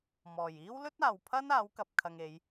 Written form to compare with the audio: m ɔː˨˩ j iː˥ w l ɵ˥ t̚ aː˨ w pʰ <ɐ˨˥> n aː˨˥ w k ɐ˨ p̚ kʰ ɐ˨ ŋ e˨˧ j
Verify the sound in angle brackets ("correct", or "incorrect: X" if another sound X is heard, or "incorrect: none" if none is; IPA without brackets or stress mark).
incorrect: ɐ˥